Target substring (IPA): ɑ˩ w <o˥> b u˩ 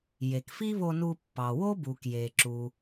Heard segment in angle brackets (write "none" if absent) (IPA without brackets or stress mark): o˥